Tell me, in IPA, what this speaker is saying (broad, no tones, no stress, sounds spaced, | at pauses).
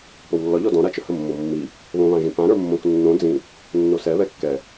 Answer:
p o w lː ɒ ʎ ɔ d ɔ̃ ɾ a t͡ʃ ə h ə mː o mː i | β õ β ã ʒ ĩ p ã ɾ ə˞ mː õ k nː õ d͡z ĩ | nː o s ɛ β ɛ kː ɛ